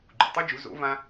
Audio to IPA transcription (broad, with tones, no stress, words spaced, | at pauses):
ɡ͡ǃṵ˨tˤɯ˦d͡ʒu˨˦ zo̰˨˦vã˧